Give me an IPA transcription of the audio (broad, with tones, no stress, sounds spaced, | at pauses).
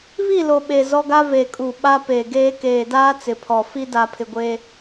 β i˦˨ l o˨ ɓ e˨ z ɔ˦ ɡ a˦ v eː˨ kʼ uː˨ ɓ a˦ p eː˨ ɡ eː˦ k eː˨ d aː˦ t͡s ɪ˨ pʰ ɔ˨ f i˦ d a˨ pʰ ɪ˨ ɡʷ eː˦